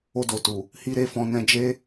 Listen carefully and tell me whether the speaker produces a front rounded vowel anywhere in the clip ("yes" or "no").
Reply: no